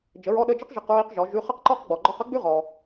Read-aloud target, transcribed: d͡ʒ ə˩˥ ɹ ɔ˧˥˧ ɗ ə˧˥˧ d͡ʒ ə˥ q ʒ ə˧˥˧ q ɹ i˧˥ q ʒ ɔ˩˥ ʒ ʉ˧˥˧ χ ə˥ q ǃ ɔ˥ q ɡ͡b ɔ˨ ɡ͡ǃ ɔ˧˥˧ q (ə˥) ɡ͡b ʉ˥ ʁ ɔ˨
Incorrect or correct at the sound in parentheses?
correct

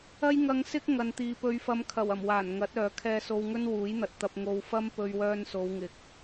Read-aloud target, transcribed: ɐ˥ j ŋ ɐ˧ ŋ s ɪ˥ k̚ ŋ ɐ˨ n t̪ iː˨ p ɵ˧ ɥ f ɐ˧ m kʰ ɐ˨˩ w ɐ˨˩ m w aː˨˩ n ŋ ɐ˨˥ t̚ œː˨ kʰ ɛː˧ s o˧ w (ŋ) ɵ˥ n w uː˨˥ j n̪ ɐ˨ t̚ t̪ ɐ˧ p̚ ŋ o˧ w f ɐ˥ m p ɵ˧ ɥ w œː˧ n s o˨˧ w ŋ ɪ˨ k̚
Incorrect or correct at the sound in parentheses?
correct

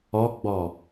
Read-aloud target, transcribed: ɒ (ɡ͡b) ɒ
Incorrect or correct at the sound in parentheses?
correct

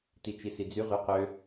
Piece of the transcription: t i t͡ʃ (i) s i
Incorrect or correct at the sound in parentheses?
correct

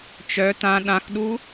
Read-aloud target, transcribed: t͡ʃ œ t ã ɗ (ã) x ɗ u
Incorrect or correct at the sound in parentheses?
correct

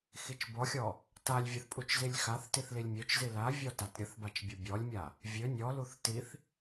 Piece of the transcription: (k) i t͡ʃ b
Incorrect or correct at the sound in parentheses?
incorrect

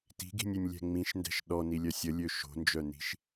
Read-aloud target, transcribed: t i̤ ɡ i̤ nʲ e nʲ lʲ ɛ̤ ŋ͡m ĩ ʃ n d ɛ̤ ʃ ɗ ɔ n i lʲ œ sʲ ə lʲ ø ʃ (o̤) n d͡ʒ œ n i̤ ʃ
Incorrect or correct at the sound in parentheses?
correct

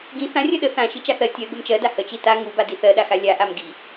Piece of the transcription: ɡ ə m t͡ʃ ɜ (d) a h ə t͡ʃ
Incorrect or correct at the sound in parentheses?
correct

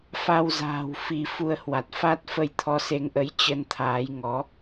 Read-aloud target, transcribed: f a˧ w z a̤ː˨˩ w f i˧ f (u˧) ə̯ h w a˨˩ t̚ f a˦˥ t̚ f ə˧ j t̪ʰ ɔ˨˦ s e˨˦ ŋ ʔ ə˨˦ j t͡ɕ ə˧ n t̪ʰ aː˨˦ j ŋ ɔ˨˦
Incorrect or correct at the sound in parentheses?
correct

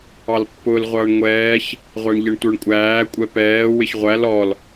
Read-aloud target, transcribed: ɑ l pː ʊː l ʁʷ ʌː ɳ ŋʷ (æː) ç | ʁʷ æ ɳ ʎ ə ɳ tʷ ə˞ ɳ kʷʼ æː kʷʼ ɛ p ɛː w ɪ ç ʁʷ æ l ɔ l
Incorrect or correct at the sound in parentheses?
incorrect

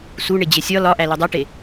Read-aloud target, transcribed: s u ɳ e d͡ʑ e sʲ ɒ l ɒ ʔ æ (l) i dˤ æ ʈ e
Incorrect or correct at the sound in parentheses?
correct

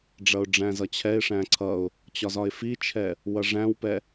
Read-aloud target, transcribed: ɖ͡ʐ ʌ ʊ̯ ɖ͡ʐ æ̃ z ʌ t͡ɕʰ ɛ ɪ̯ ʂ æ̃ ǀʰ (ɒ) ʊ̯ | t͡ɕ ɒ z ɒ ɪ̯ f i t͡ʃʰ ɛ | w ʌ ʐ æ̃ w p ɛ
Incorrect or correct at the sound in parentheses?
incorrect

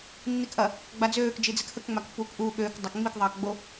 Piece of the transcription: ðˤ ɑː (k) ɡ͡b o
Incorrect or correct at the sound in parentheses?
correct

